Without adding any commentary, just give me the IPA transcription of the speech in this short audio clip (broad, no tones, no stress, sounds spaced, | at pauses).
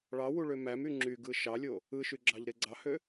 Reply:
ɭ ɑ w u ɭ ø m æ m y ŋ͡ǁ y ɡ ɯ ʃ ɑ lʲ o | ɯ ʃ y ɡ͡ǁ ɑ ʎ ɾ e ɡ͡ǀ ɑ h ø